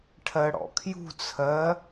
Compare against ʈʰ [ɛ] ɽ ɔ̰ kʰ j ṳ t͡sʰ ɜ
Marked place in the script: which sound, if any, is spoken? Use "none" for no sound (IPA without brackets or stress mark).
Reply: ɜ